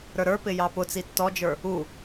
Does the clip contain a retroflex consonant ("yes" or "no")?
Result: no